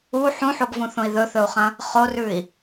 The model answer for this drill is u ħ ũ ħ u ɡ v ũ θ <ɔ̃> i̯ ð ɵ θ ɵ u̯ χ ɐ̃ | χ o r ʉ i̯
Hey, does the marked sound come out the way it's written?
no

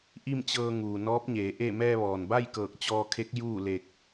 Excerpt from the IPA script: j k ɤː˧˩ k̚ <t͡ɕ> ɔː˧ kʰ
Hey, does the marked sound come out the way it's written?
yes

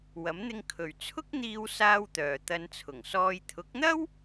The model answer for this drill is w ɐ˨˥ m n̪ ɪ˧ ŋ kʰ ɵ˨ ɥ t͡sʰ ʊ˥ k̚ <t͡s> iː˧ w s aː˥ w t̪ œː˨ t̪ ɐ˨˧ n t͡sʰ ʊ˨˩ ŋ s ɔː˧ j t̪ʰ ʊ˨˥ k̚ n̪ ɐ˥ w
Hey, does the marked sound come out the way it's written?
no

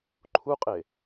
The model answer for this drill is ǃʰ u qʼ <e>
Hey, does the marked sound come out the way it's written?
yes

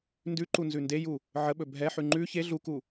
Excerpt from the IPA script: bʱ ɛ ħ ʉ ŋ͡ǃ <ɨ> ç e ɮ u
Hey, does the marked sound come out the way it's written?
no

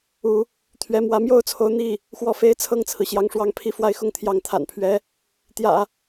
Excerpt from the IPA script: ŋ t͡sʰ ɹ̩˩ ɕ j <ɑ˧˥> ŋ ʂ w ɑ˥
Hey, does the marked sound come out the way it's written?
no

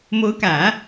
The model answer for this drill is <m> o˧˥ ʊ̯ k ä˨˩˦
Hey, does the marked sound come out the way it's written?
yes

